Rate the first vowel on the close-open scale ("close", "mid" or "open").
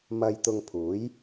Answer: open